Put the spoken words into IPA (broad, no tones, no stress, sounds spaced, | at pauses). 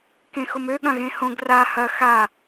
k ẽ x ʊ m ø ɠ ɐ̃ ɣ ẽ h õ ɡ r a h ɐ x a